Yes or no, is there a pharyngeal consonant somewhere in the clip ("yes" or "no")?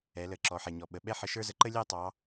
yes